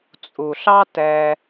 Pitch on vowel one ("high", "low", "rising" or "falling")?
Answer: low